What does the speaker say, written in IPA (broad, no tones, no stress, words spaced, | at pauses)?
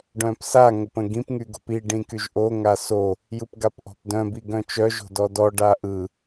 ɖœ̃psa ŋəpə̃ɡĩp ŋyɡo̤pi ɖĩkyʒʔo ŋaso | jɯpɡapʔɔ̤pdœ̃ biɡœ̃t͡ʃœ ʒo̤dɔdɔ ɖaʔɯ